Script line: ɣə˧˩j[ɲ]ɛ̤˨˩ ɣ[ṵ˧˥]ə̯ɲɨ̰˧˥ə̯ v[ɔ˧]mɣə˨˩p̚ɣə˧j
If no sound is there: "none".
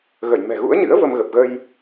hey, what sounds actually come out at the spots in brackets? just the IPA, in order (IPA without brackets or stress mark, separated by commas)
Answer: m, ṵ˧˥, ə˧